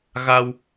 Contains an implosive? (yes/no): no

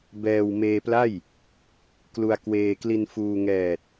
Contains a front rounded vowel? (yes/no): no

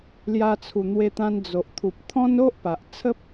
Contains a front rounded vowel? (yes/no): no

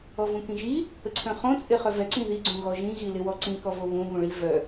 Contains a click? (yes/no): yes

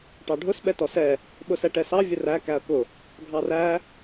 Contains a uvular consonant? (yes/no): no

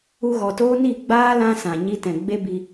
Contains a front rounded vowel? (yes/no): no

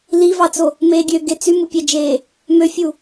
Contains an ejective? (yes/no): no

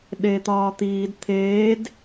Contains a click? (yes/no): no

